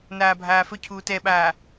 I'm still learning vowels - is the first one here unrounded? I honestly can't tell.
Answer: yes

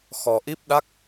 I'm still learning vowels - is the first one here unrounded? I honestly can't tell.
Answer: no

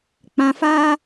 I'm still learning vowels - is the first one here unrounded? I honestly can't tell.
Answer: yes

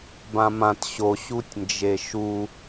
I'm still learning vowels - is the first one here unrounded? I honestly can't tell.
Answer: yes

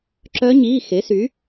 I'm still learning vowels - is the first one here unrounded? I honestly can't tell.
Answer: no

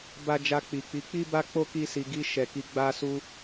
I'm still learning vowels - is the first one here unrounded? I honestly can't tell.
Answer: yes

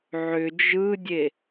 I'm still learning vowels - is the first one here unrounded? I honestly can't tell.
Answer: no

